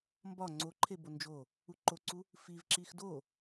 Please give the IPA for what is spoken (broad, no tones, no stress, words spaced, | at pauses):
mbɒ ŋ͡ǀoǃʰe bond͡ʒo | uǃoǀu | fivǁix do